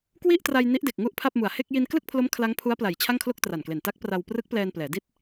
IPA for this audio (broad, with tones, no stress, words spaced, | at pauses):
kwi˥˩ʔtra˧j ni˦˥ʔde˨˩k̚ŋu˥˩ʔpʰa˥˩p̚ mu˨˩a̯he˥˩k̚ ji˧nklɯ˥˩k̚pʰlo˦˥m kʰla˦˥ŋpʰu˦˥a̯pla˨˩j t͡ɕʰa˥˩ŋkʰlo˥˩k̚tra˨˩nkle˨˩n ta˦˥k̚pra˧w prɯ˦˥k̚plɛː˧nplɛː˩˦di˦˥t̚